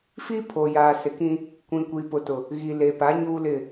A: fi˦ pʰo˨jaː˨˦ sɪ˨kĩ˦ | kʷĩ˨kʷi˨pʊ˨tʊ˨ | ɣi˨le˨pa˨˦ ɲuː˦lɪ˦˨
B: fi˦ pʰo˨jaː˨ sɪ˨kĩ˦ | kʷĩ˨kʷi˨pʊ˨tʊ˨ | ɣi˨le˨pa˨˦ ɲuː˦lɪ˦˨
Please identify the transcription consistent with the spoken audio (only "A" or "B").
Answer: B